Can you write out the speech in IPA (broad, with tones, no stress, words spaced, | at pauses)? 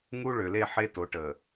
ŋu˦ ɭø˨le˦˨ħe˦ to˨˦ʈə˨